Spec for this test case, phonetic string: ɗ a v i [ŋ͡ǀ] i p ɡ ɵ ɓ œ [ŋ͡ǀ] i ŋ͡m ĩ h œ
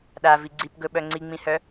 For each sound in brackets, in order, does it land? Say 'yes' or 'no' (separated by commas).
no, yes